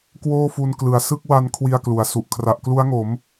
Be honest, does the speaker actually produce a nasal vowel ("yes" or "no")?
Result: no